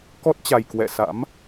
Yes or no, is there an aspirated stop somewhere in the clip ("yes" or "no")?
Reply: no